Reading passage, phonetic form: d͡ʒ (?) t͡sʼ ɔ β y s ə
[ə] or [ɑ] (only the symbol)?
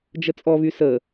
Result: ə